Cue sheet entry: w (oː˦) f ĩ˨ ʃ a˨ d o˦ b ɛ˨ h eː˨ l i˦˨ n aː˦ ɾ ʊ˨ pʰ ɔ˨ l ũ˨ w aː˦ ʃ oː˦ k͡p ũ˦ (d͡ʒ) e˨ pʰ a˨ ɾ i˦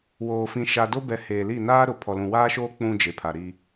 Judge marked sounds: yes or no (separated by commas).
no, yes